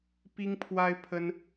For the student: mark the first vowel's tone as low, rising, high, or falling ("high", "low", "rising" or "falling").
high